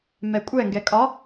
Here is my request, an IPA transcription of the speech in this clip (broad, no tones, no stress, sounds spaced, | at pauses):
m ɛ kʷʼ ɛ ŋ ɡ ɛ kʼ ɒ